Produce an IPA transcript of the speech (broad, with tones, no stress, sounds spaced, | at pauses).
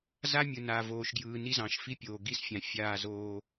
z a˦ mʲ ɯ˨ n a˨ v oː˨ ʃ ɡ j ɯː˨ n i˦ z ɑ̃˨ ʃ f i˦ pʲ oː˨ ɡ i˦˨ s fʲ ã˨ fʲ aː˦˨ z oː˦